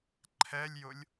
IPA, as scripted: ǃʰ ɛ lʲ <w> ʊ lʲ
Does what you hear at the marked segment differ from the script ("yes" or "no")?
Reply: yes